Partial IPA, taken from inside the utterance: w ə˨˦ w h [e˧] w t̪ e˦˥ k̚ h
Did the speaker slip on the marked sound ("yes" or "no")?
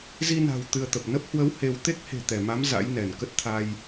no